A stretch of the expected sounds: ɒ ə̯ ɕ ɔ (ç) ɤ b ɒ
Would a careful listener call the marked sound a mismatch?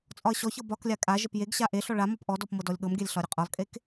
no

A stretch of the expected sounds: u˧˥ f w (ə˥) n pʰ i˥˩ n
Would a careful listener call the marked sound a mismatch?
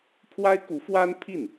yes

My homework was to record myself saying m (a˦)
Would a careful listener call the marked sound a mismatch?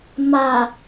yes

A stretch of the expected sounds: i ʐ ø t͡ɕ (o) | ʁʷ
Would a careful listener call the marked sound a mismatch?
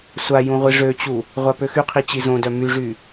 yes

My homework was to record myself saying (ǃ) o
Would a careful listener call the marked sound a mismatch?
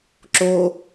yes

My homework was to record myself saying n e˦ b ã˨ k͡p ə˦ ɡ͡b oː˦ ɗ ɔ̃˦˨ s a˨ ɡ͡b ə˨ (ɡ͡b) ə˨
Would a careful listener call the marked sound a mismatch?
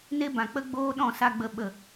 yes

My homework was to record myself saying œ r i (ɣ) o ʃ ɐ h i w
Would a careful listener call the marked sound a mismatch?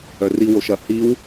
yes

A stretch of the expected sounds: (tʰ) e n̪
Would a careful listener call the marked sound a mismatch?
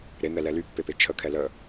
yes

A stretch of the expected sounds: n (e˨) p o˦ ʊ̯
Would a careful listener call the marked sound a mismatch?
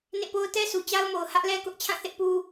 yes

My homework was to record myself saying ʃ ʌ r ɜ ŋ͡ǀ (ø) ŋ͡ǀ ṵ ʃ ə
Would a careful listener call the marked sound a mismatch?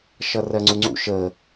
yes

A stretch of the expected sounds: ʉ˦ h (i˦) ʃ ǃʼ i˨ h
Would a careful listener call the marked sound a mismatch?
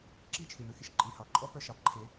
yes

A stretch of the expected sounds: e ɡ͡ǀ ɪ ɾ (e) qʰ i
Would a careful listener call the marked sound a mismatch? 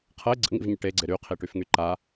yes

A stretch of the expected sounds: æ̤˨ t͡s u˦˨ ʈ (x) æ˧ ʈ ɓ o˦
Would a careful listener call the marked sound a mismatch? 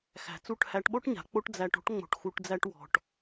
yes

